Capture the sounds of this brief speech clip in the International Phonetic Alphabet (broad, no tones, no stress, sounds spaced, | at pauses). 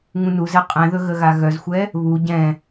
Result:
ŋ ũ n u z ɛ qʼ ɛ̃ ð ɵ ɣ ə ɣ a ɣ œ z xʷ ɛ | β u ɟ ɛ̃